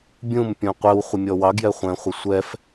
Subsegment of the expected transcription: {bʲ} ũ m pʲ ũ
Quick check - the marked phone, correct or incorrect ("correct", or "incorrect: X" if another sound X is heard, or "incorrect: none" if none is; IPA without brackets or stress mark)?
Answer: correct